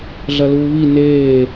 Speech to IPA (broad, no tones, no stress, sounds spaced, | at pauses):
ɮ ɐ l uː β i n eː